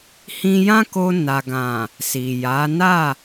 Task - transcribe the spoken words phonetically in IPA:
h ĩ˧ j ã˦ k o˧ n a˨ ɡ ã˨ | s i˨ j a˨˦ n a˦˨

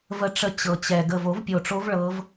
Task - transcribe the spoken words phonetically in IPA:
v ə˨˦ ʈ͡ʂ ə˨˦ t͡ɕ ɤ˨˩ t͡ɕ ɛ˨˩ ɡ ə˨˩ v o˨˩˦ v pʲ o˨˩ ʈ͡ʂ o˨˦ v ɭ ɤ˨˦ v

